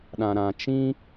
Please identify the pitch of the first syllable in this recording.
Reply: low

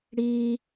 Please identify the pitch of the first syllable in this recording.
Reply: high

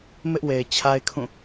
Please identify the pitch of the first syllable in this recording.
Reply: high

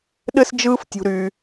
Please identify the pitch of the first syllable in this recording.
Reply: high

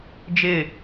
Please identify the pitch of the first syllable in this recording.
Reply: falling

